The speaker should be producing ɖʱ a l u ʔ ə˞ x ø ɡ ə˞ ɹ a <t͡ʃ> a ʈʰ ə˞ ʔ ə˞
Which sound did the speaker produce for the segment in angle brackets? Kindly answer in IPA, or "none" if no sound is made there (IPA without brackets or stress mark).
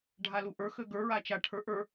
t͡ʃ